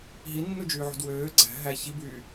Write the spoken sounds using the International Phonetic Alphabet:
ɦ i nː u d͡ʒ yː ʕ ṳ d w øː ɡ͡ǀ æ̤ ɦ æ ç i b yː

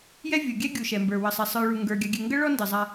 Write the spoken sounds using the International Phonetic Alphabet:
j ɛ˦ vʲ u˩ ɡʲ ɛ˦ ɡʲ u˨ ʃ ɛ˩ m b ə˞˩ w ə˨ sˤ ɛ˨ sˤ ə˞˨ ɭ u˩ ŋ ɡ ə˞˩ ɡʲ a˨ ɡʲ ɛ˨ ŋ ɡ ə˥ ɭ ɔ˥ n d ɪ˩ zˤ a˨

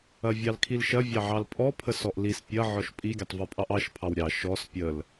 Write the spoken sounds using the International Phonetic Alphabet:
ɐ vʲ ɑ l kʰ i l ʃ ɐ vʲ ɑ ʕ ɑ l pʼ ɔ pʰ ə s ɔ ʔ l i s pʲ ɐ ʕ ɔ ʃ pʼ i ɡʲ ɐ tˤ v ɔ pʼ ɑ ʔ ɑ ʃ pʰ ɑ w ɾʲ ɑ ʃ ɔ s pʲ ə l

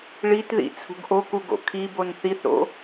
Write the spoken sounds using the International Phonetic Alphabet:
ɭ i t ð ḭ t͡sʰ ṳ ɡ ʔ o k u ɡ o̰ kʰ i b o n θ i θ ɾ o̰

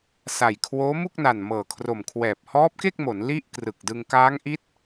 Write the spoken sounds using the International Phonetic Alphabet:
s a˨˩ j kʰ w oː˦˥ m u˥˩ k̚ n a˨˩ n m ɤː˨˩ kʰ r o˨˩ m kʰ w ɛː˨˩ p̚ h ɔː˦˥ p̚ k e˥˩ k̚ m o˩˦ n l i˥˩ ʔ k r ɯ˨˩ k̚ d ɯ˧ ŋ k aː˦˥ ŋ ʔ i˦˥ t̚

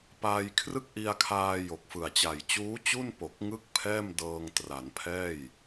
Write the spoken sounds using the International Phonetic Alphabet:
p aː˧ j kʰ r ɯ˥˩ k̚ ʔ i˧ a̯ kʰ aː˧ j o˨˩ k̚ f ɯ˨˩ a̯ t͡ɕ a˨˩ j t͡ɕ uː˦˥ t͡ɕ u˥˩ n p o˨˩ k̚ ŋ ɯ˥˩ k̚ pʰ ɛː˥˩ m d ɤː˧ ŋ t r a˩˦ n pʰ ɛː˥˩ j

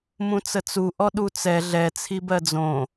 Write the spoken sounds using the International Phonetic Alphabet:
m ũ t͡s ə t͡s u ʔ ɔ ɗ u t͡s ɛ ɮ ɛ t͡sʰ i b ɜ d͡z õ

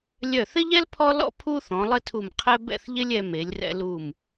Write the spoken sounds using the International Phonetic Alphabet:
lʲ œ˧˩ θ ɪ˥ ʎ ɛ˥ l pʰ ɔ˥ l ɔ̰˥ pʰ u˥ θ ɔ̃˩˧ lˠ ɘ˥˧ tʰ u˧˩ m qʰ ɛ˥ b ɛ̰˥˧ θ ʎ ɪ˥ lʲ ɛ˧ m e˩˧ lʲ r ɛ̰˧ l u˧˩ m

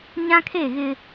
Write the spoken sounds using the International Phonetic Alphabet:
ɲ ã˦ kʰ e˦˨ ɣ ɪ˦

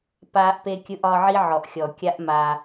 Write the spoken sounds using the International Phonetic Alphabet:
p aː˦ ʔ p e˦ kʲ ɯ˦ ʔ ɒ˦ ʕ i˦ ʕ ɔ˨ ʔ xʲ ɔ˨ kʲ a˦ ʔ m a˧

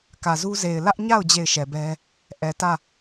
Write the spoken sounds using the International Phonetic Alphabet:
k ä˨ z u˦ z e˨ ɪ̯ l ä˦ ʔ ɲ a˦˨ ʊ̯ d͡ʑ e˦˨ ɪ̯ ʃ ɛ˨ b ɛ˦ | ʔ ɛ˨ t ä˦˨

